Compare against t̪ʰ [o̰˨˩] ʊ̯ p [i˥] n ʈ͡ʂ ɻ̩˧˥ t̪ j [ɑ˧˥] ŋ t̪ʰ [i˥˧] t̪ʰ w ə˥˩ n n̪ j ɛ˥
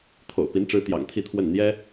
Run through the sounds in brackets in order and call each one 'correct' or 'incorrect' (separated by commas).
correct, incorrect, incorrect, correct